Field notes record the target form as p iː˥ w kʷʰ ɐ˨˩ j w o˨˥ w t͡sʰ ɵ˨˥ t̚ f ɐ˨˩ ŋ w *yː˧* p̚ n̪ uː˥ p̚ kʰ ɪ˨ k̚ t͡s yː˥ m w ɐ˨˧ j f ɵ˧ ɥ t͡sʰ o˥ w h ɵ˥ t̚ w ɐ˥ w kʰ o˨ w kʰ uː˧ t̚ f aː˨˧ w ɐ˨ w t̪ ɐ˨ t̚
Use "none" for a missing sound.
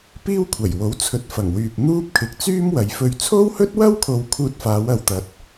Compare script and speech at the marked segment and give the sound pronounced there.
yː˨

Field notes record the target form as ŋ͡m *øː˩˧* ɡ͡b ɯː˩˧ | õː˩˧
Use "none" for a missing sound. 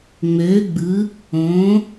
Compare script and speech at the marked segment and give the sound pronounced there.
øː˩˧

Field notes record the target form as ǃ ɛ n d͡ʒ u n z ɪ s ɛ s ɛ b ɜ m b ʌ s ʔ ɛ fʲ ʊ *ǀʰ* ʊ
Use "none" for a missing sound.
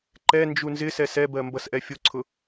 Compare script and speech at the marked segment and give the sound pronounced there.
ǀʰ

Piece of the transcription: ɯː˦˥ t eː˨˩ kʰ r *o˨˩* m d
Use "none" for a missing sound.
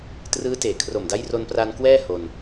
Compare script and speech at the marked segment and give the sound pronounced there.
o˨˩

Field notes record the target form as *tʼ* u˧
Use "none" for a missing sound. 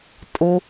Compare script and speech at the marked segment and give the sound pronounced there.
tʼ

